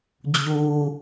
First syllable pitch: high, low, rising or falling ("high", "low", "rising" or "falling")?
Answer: low